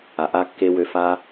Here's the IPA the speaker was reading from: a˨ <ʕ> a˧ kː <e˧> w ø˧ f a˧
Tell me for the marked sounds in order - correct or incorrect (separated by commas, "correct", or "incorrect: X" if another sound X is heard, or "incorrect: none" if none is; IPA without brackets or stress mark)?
incorrect: ʔ, correct